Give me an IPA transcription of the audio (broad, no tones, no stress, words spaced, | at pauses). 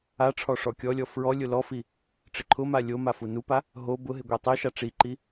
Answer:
aʈ͡ʂʰɔ ʂɔkʲɔlʲɔ fɹɔ lʲʊlɔfi | ʈ͡ʂɪǃʰʊma lʲoma funupa | ɦo bʊɦɪ ɡʷitˤɪʃa ʈ͡ʂiǃi